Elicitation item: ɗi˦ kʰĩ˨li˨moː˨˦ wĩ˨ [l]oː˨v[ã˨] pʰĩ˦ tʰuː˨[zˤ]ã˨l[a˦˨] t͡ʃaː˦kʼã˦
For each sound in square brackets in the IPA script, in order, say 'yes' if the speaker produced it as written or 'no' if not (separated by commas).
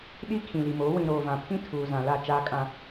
no, yes, no, yes